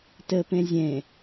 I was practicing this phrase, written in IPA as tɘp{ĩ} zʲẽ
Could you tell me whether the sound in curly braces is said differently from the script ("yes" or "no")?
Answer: yes